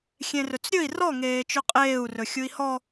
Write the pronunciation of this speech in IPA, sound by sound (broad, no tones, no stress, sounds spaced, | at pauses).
xʲ ẽ r ɵ t͡s ɾʲ ɵ i̯ r ɔ ŋ eː t͡ʃ ɵ qʼ eː u̯ r ɵ xʲ u i̯ h ɔ